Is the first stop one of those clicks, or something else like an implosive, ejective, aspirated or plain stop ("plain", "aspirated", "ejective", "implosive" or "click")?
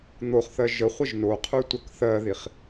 aspirated